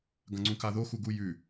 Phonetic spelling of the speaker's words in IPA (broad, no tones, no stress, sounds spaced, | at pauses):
ɡ ɐ̃ ŋ͡ǀ ũ k a ð o x u ɡ u j ʉ